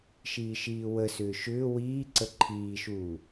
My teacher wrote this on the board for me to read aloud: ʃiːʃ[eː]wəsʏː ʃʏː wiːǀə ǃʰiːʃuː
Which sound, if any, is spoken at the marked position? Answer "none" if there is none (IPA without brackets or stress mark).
iː